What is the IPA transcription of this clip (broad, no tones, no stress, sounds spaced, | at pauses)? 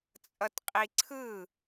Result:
t͡sʼ ʌ t qʼ i ǀʰ ɯ